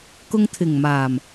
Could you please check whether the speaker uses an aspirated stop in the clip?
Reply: yes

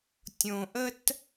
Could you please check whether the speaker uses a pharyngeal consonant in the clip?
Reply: no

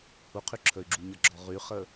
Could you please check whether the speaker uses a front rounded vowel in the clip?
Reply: yes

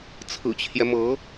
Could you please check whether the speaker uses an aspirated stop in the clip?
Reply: yes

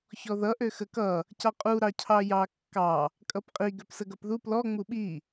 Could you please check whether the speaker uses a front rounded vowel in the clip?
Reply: yes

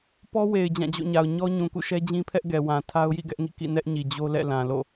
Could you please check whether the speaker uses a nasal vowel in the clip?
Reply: yes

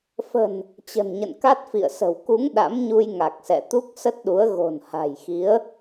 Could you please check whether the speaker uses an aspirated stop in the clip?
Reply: no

